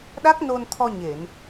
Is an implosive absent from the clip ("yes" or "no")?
no